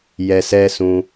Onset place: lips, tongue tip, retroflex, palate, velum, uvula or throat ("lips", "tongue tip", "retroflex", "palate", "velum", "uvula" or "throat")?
palate